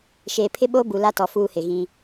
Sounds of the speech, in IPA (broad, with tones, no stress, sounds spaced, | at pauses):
ʃ eː˨ pʰ ɪ˦ ɓ oː˦ b u˨ l a˦ t ɔ˨ f uː˦ h ɪ˨ ɣ ĩ˦